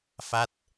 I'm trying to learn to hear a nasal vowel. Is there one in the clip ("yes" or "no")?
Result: no